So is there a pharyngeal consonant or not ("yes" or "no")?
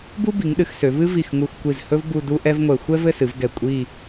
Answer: no